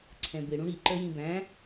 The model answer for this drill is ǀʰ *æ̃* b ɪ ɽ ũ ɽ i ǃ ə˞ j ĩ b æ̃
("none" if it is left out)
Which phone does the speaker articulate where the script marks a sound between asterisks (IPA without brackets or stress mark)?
ɛ̃